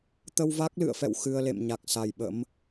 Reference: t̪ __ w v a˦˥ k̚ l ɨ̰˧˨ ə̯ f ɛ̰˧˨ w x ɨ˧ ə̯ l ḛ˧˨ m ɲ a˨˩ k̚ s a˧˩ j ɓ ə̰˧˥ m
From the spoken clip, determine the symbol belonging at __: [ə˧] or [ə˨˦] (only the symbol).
ə˧